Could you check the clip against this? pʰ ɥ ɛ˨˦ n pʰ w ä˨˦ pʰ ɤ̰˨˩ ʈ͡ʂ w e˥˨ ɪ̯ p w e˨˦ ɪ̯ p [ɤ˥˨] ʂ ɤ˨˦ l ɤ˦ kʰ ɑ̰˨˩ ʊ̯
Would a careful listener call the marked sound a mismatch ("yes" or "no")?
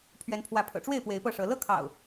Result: no